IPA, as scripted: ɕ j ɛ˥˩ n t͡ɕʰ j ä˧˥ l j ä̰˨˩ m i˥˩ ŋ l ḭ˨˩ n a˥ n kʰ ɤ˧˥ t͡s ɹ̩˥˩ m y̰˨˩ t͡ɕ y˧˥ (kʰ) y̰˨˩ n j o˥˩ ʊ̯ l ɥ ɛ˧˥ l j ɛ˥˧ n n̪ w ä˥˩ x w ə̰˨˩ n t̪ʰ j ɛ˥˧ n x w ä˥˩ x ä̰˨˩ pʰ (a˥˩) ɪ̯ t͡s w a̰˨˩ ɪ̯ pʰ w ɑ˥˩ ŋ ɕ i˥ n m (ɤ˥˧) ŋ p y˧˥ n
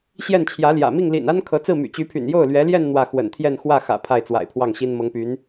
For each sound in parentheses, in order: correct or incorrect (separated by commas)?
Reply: incorrect, correct, incorrect